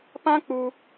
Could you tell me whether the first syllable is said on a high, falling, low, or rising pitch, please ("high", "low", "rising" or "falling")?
high